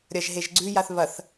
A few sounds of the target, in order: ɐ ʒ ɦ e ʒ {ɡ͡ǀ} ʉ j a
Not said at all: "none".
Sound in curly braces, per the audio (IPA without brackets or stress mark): ɡ͡ǀ